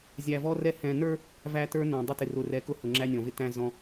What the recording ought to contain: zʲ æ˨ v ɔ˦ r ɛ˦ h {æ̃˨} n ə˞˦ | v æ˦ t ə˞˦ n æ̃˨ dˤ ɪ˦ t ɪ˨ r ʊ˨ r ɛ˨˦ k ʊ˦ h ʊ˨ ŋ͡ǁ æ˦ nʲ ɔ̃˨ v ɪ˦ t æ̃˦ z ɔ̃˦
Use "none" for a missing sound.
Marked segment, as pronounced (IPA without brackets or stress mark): ɛ̃˨